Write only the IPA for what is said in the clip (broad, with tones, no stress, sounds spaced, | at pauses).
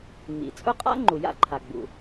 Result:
ŋ͡m ḭ˩ t͡sʼ ʊ˥ qʼ a̰˥ ŋ͡ǃ u˩ j a̰˥ ǃʰ a˩ ɡ͡b ṵ˩